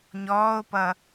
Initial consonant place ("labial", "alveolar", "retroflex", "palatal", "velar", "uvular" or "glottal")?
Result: palatal